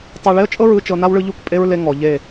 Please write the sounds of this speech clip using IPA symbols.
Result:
tˤ a˧ ɭ e˦ ə̯ t͡ʃʼ ɤ˦ ɹ ɯ˧ t͡ʃ ɤ˧ n a˦ w ɭ ɯ˧ ʎ u˦˨ k pʼ e˦ ɹ l e˧ ŋ ɔ˨ ʎ e˦˨

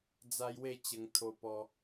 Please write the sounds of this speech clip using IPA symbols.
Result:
d͡z a˦ j w e˥˧ t͡ɕ ə˧ ŋ t̪ʰ o˧ p ɔ˧

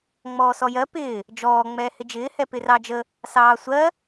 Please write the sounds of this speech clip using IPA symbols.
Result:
ŋ͡m ɔː s ɔ j ɜ p ɪː | d͡ʒ ɔː ŋ͡m ɛː h ɪ d͡ʒ ɪː h ɛ p ɪ r ɑ d͡ʒ ə | s ɑː sʷ ɜ

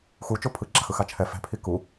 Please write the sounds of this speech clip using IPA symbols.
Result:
x u t͡ʃ o pʰ ɯ ɡ͡ǁ a x ɯ x a t͡ʃʰ ɛ f ɛ̤ pʰ i k u

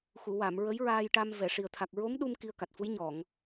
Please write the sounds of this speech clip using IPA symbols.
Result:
x u˨˩˨ w a˨˩˨ m ɹ ə˧˥ j ɹ aː˧ j ʈ a˧ m v ɛ˨˩˨ ʂ i˨˩ ə̯ t̪ʰ a˨˩ k̚ ɹ o˧˥ m ɗ u˧ m k i˧ ə̯ k a˨˩ t̚ f u˧˥ j ɲ ɔ˨˩˨ ŋ

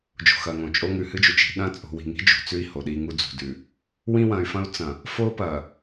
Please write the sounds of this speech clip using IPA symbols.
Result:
d͡ʒ o̤˨ x ɐ˨ ŋ õ˨ t͡ʃʼ o˦ ŋ ʉ˨ h ɨ˦ d͡ʒ u˨ t͡ʃ i̤˨ ɗ ɐ̃˦ t͡sʼ o̤˨ w i̤˨ ŋ i̤˦ d͡ʒ ṳ˨ t͡s ʉ˦ i̯ h o˨ ɗ i˦ ŋ u˦ d͡z ṳ˨ d ʉ˨ | w ĩ˦ w ɐ̃˨ y̯ f ɐ̃˦ u̯ t͡s ɐ̃˨ | f o˦ p ɐ˨

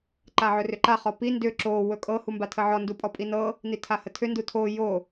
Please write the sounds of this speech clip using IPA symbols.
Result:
ǃ a ʕ ɵ r ʏ ǃ a χ ɔ p i n d ʏ ǁ o w ɵ kʼ ɤ h u m b a tʰ ə ʕ ɔ n d u pʼ ɔ pʼ i n ɤ | n i tʰ a h ə tʰ ʏ n d u tʰ o j o

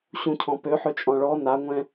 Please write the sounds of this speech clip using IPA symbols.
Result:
ɕ ũ cʰ ɔ̃ p ø ħ ø t͡ʃʼ ɔ̃ ɭ ɔ n a ŋʷ ɛ̃

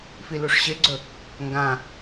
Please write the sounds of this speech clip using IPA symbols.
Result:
f i l u ʂ ɕ e ɡ͡ǀ ɵ | ŋ ɡ ã

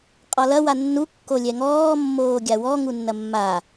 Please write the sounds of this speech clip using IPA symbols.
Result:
qʼ ɒ l ɐ w a nː u kː o lʲ ɛ ŋ ɔː mː oː ɡʲ a w ɔ ŋ u nː ɐ mː a

